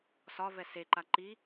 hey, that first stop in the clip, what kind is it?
click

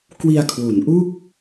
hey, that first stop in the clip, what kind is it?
plain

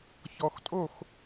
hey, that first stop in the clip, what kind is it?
ejective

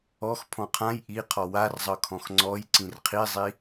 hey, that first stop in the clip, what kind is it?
aspirated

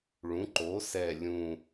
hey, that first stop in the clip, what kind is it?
click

